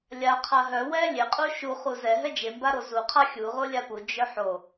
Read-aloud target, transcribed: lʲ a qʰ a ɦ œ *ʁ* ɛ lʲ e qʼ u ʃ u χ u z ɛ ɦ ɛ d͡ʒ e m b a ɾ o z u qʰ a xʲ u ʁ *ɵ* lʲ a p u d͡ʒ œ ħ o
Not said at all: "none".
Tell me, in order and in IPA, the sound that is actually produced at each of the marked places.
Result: w, o

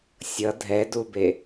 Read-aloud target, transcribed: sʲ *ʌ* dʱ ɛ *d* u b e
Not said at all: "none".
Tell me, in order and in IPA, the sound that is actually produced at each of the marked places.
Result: ʌ, d

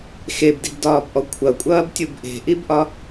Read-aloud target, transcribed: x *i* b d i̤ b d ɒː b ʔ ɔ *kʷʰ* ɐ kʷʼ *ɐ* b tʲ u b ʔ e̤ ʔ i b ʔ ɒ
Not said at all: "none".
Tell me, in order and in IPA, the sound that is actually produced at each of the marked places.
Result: e, kʷʰ, ɐː

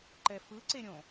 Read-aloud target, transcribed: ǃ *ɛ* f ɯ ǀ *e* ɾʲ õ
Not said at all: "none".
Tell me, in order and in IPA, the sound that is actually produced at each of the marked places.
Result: ɛ, e

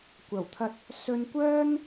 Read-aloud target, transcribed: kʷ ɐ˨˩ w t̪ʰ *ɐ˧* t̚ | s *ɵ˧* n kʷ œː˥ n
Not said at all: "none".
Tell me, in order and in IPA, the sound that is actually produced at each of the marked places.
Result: ɐ˧, ɵ˧

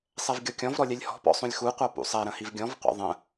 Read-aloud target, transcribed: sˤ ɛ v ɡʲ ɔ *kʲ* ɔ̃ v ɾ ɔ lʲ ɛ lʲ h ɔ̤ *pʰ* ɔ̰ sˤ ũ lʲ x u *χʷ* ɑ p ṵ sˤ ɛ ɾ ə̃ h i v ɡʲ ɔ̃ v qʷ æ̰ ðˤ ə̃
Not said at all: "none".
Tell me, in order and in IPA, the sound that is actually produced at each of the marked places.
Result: kʲ, p, qʷ

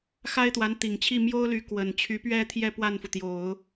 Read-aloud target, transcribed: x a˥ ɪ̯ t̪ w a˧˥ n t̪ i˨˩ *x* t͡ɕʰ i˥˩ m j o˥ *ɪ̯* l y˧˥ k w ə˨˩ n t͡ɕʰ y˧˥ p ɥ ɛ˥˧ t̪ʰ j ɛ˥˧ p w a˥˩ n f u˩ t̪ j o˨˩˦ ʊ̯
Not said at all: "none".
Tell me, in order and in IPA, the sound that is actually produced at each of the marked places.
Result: ŋ, ʊ̯

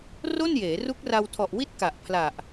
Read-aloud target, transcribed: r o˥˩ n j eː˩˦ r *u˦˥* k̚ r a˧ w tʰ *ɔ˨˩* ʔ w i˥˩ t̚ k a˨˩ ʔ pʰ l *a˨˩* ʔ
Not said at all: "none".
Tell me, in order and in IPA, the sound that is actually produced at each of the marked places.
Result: u˦˥, ɔ˨˩, a˨˩

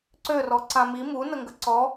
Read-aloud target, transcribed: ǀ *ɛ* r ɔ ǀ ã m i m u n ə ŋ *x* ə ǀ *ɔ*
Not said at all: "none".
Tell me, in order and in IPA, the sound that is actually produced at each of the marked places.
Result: ø, ɡ, ɔ

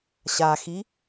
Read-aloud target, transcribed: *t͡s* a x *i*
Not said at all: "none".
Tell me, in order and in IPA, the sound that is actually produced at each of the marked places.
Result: ɕ, i

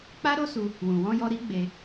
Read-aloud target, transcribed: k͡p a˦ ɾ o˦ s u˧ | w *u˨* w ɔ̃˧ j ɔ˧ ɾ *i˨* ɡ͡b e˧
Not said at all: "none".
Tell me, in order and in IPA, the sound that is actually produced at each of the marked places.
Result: ũ˨, i˦

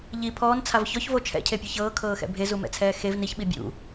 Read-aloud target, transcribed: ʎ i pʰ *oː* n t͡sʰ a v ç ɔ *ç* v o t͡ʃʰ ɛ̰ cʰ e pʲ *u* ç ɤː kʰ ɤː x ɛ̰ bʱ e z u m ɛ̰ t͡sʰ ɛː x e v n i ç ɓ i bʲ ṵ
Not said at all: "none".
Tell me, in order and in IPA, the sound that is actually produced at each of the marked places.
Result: ɔː, ç, ɯ

